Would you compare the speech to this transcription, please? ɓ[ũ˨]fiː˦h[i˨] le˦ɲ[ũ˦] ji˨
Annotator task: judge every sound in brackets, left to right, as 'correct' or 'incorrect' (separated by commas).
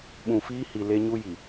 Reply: correct, correct, incorrect